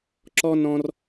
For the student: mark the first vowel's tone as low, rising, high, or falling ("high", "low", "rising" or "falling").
high